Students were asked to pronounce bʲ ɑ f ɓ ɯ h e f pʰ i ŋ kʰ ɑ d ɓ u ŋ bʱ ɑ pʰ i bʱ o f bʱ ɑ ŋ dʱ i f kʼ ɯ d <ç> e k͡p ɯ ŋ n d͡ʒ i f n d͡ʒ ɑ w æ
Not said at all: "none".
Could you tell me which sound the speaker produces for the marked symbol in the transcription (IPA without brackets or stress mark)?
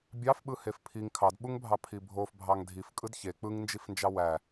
ç